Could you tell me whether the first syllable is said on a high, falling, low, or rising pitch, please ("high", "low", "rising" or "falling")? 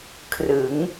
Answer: rising